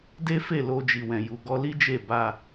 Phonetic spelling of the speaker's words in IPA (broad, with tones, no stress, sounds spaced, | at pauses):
d e˦ f e˦˨ l o˧ d͡ʒ i˨ w ɛ̃˨ j u˨ ɡ ɔ˧ l i˦ d͡ʒ e˦˨ b a˧